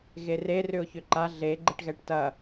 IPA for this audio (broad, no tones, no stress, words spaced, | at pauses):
ɣere rʏʊ̯çʏǃa ɮe ɡ͡ǃeʈɣɛʈtɐ